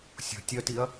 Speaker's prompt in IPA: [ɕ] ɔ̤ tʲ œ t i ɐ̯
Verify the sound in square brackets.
incorrect: sʲ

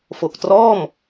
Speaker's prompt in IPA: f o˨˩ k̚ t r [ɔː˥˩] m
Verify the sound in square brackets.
correct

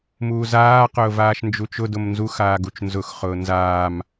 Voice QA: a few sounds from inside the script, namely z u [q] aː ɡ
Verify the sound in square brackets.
incorrect: x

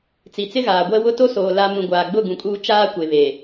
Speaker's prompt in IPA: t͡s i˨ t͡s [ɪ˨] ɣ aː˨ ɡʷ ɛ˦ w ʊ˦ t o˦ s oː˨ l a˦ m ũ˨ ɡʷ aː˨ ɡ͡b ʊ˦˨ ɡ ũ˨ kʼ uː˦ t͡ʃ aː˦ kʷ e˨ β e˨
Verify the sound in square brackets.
incorrect: ɪ˦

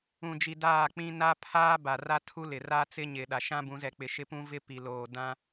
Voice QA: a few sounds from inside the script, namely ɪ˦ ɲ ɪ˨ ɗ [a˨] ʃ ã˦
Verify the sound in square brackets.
correct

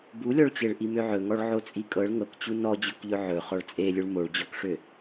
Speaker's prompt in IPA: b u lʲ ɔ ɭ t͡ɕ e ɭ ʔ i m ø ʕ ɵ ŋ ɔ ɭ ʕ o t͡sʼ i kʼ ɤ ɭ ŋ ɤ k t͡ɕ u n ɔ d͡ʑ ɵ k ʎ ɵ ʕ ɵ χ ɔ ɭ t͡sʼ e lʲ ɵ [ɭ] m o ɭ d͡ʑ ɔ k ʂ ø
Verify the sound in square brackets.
correct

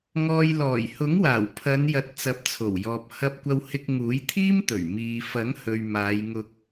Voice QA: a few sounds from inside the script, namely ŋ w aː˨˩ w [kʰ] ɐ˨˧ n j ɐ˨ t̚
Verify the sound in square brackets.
incorrect: pʰ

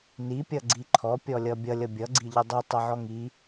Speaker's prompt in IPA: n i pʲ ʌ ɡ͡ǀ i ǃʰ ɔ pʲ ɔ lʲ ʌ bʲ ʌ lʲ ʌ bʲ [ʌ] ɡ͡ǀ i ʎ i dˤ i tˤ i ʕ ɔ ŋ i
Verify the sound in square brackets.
correct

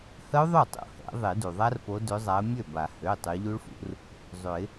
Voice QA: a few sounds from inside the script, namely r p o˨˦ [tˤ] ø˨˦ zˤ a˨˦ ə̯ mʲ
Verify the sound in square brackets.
incorrect: d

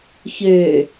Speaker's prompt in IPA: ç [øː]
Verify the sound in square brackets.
incorrect: ø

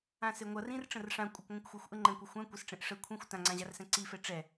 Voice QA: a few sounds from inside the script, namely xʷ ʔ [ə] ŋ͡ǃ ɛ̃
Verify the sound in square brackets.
correct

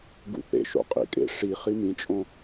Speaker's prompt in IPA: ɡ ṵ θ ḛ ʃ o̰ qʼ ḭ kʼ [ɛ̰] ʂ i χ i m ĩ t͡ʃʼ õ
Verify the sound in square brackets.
incorrect: ḛ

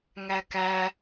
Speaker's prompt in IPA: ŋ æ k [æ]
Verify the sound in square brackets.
correct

